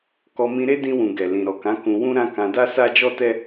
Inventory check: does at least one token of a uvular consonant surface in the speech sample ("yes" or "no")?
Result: no